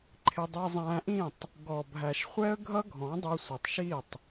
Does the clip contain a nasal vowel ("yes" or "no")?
yes